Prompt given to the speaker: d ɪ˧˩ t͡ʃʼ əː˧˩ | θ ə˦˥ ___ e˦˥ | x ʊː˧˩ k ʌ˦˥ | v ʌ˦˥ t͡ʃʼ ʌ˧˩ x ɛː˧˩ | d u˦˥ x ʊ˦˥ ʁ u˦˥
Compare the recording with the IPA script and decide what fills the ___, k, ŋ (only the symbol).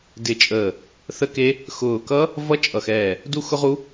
k